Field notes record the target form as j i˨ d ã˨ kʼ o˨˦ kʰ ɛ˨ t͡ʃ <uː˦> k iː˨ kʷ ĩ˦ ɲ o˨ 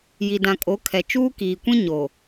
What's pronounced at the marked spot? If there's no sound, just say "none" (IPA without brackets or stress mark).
uː˦